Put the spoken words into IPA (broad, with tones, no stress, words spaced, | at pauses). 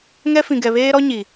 ŋɛ˦fĩ˨ɡɛ˨ βeː˦ɾɔ˦ɲi˨